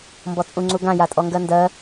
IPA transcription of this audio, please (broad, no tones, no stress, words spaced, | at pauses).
mbɔt͡sʼũŋ͡ǀuɡã jatʼɔŋɡɜndɜ